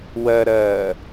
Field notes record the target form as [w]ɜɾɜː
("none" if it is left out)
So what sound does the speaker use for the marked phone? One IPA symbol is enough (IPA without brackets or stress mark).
w